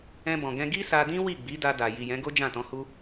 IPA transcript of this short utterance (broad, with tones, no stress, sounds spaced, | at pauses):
ɛ̃˧ b ɔ̃˨ ɡ ɛ̃˧ ɡ i˦ s a˧ d ĩ˦ w i˦˨ ɡ͡b i˨˦ d a˧ d a˨ j i˨ j ɛ̃˨˦ ɡ o˦ d͡ʒ ã˦˨ t ɔ̃˨˦ h u˦